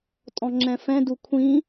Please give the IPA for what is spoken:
tʼ ɔ̃ ŋ͡ǁ ɛ̃ f ɛ̃ d u kʷʰ ĩ

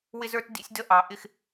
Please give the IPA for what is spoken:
w ɪ˦ z ə˞˦ t d ḭ˦ sʲ d ə˦ ʔ ɑ˨ ʔ ɪ˦ x

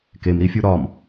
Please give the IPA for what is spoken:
k e m ɾ i fʲ u ɾ ɒ m

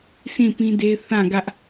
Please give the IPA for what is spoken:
s ĩ˦˨ p ĩ˦ d e˦ θ ã˦˨ ɡ ä˦ ʔ

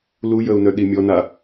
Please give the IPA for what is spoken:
l u j ə u̯ n œ ɗ i mʲ ɔ n a

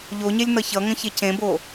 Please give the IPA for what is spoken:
ʎ o ɲ e lʲ n ʌ ç ʌ ŋ ə̃ ç e c ẽ b o

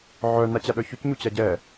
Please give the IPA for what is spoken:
ʕ œ n a t͡ɕ a ɗ œ ç o c ɲ u t͡ɕ a ɟ ɛ

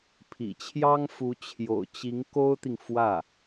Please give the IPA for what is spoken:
pʰ ḭ˨˩ t͡ɕʰ j ɑ˥ ŋ f u˧˥ t͡ɕʰ j o̰˨˩ ʊ̯ t͡ɕ i˧˥ ŋ k o˥ ʊ̯ t̪ i˨ ŋ f w ä˥˩

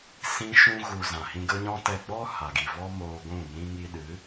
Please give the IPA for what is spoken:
s ĩ˧ ʃ ũ˧ ɣ u˨ z ã˨ h ĩ˧ ɡ ə˦ ɲ ɔ̃˦ t ɛ˧ ɡ͡b ɔ˦ h a˨ ɡ i˨ v ɔ˦ m oː˧ ɡʷ ũ˦˨ m ĩ˦ ŋ i˧ ɗ ɨ˨˦

